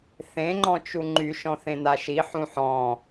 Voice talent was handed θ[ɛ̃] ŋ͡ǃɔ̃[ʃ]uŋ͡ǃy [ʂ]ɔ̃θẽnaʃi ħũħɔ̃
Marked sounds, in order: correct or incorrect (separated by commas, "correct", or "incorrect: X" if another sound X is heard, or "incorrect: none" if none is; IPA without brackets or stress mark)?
incorrect: ẽ, incorrect: t͡ʃ, incorrect: ʃ